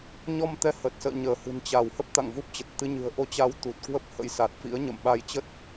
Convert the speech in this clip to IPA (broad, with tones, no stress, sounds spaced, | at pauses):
ɲ ɔ˧ m t̪ ɛ˧ h ə˨˩ t̚ s ə̰ː˧˨ ɲ əː˧˩ h ɨ̤˨˩ n t͡ɕ a˧˩ w h ə˦˥ p̚ t̪ a̰˧˨ ŋ v u˦˥ p̚ t͡ɕ ə˨˩ t̚ t̪ ɨ˧ ɲ ɨ̤˨˩ ə̯ ʔ o˨˦ t͡ɕ a˨˦ w t̪ u˨˩ t̚ k w ə˦˥ p̚ h ə̰˧˥ j s a˨˩ t̚ f ḭ˧˥ ə̯ ɲ ə̰˧˨ m ɓ a˧ j t͡ɕ ə˦˥ t̚